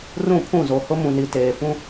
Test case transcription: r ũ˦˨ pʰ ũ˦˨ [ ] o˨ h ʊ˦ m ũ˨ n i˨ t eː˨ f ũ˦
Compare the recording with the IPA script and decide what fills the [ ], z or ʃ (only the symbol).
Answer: z